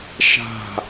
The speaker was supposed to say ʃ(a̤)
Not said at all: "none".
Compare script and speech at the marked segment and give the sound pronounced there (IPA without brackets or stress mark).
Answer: a̤